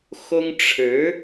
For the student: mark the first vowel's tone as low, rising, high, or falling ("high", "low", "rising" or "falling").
high